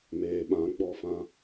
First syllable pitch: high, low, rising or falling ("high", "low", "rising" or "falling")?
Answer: low